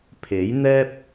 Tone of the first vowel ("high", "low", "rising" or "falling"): rising